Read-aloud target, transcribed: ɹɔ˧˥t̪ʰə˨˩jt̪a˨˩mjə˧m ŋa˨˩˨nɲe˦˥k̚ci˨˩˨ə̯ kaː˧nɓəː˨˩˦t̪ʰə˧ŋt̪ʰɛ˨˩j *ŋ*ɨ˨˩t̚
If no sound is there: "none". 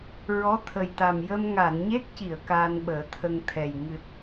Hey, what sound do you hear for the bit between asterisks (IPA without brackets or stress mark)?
ŋ